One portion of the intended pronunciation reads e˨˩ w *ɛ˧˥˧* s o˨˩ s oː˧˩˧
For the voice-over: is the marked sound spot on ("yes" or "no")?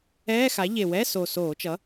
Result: yes